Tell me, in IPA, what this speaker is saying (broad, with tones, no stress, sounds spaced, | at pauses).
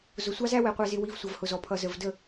z ʊ˨ sʷ ɑ˦ z æ˦ w ɛ˨ qʷ æ˨ z ɪ˨ w i˨ v sʷ ʌ˨ v h ʊ˨ z ɔ˨ pʰ ʌ˨ z ə˨ v d ə˦˨